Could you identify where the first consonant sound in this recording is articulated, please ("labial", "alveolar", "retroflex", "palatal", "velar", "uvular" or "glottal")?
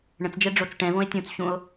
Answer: retroflex